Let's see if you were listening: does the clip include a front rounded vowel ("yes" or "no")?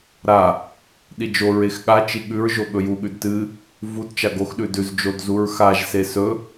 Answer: no